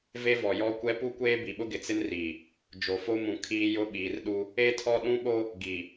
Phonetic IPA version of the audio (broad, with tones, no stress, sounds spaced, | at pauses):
v e˦ v ɔ˨ j ɔ˦ kʷ ɛ˦ p u˦ kʷ eː˦ b i˨ ɓ ʊ˦ ɡ ɪ˨ t͡s ɪ˦ n r iː˨ | d͡ʒ o˨ f o˦ m ũ˨ kʰ iː˦ j ʊ˦ ɓ iː˨ r ɗ u˦ | e˦ tʰ ɔ˦ ɗ ũ˦ ɓ o˦ | ɡ i˨